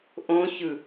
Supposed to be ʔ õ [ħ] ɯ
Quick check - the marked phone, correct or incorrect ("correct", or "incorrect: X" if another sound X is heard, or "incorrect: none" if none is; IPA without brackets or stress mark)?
incorrect: ç